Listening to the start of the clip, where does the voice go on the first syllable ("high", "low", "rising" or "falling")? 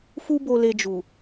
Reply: high